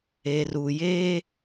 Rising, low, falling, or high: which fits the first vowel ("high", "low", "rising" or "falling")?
low